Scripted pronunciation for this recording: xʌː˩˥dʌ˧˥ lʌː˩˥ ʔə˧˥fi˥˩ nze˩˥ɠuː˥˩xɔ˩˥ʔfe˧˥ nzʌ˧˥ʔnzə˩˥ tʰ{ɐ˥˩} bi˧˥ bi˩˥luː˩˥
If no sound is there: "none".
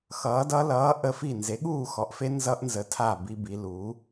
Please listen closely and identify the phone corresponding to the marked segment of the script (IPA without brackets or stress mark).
a˥˩